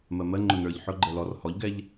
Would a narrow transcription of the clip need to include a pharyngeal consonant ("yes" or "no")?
yes